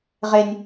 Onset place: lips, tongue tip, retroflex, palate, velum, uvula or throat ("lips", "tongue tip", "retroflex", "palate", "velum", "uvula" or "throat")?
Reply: uvula